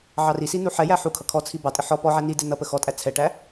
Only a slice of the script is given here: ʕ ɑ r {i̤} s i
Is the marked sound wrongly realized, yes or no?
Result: yes